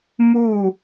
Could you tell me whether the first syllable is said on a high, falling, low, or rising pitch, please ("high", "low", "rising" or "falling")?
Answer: falling